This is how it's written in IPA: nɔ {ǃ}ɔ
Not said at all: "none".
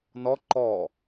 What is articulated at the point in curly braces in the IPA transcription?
ǃ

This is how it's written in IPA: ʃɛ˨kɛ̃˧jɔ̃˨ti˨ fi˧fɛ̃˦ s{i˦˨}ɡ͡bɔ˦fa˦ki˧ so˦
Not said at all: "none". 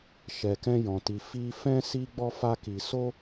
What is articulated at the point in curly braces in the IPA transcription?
i˦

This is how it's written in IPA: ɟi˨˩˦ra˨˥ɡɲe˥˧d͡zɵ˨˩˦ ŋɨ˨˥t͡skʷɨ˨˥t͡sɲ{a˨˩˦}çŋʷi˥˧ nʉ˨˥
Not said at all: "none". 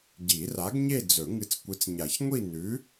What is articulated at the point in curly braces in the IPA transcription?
a˨˩˦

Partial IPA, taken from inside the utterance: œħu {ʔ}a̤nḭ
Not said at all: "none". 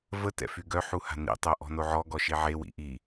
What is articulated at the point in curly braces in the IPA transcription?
h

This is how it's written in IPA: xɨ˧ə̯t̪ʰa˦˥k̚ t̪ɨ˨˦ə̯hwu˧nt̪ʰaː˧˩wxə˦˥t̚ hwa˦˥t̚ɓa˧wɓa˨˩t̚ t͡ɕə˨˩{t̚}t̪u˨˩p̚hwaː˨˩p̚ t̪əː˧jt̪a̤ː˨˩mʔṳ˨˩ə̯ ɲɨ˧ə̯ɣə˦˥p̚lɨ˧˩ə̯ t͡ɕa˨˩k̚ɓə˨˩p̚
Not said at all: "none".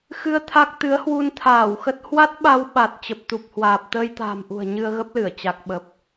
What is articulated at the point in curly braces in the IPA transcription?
p̚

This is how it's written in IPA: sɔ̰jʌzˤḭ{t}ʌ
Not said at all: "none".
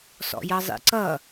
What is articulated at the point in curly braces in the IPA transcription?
ǀ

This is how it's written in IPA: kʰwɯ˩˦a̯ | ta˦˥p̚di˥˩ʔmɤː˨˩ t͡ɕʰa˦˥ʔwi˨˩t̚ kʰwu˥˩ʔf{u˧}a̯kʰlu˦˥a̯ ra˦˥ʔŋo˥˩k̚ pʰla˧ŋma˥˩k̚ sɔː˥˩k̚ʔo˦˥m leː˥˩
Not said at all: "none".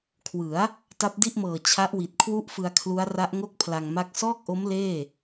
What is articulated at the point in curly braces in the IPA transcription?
ɯ˧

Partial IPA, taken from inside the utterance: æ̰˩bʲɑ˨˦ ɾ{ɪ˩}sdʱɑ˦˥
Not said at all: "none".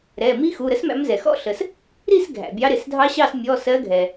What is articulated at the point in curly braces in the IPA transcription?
ɪ˩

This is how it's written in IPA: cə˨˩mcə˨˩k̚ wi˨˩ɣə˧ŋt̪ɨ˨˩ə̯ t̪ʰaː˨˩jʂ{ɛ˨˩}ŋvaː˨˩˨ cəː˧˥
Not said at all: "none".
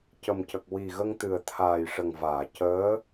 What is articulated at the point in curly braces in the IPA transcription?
ə˨˩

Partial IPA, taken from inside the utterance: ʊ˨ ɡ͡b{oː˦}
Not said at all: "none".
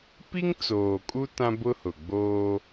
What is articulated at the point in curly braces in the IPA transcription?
oː˦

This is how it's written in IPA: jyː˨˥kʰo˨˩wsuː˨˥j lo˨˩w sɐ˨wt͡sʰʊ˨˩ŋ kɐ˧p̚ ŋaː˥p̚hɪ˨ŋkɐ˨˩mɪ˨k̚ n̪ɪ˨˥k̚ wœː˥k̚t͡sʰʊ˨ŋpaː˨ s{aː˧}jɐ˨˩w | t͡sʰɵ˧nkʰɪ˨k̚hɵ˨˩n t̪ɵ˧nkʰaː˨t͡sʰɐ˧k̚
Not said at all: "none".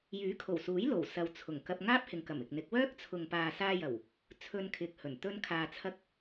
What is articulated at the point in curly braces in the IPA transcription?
aː˧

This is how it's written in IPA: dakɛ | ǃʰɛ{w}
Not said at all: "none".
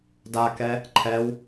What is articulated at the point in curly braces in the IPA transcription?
w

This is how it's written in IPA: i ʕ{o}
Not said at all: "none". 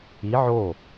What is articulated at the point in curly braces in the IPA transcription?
o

